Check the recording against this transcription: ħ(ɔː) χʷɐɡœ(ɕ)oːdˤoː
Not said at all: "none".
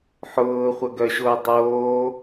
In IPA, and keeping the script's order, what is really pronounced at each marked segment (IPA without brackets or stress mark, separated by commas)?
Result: ʊː, ɕ